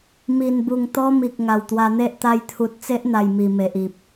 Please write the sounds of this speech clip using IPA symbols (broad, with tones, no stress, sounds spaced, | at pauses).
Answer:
m i˨˩ n b u˨˩ ŋ t̪ ɔ˦ m i˨ k̚ ŋ a˨˩ w t̪ w a˧ n̪ e˦ ʔ t̪ a˧ j t̪ʰ u˨ t̚ t͡s e˦ ʔ n̪ a˨˩ j m i˨˩ m e˨ ʔ i˨ p̚